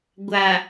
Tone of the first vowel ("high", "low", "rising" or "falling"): low